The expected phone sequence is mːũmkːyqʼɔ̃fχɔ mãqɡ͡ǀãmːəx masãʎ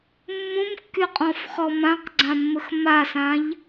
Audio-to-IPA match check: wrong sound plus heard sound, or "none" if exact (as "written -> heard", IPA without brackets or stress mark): none